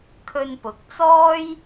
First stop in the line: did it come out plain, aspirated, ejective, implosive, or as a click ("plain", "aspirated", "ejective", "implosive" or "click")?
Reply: aspirated